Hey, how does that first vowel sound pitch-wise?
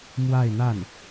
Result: falling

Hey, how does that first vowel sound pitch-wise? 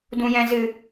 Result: low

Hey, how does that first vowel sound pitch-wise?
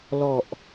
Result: low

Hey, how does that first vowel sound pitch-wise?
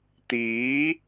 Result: rising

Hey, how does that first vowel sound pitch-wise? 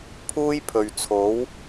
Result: high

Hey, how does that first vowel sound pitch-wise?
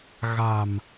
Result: low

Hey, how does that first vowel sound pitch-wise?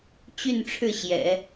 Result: falling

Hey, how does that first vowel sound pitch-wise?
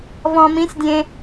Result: low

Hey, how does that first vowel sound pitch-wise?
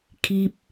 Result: high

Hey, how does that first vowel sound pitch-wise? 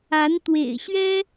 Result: rising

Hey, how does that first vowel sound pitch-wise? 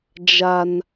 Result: high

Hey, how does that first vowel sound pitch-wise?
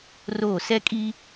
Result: falling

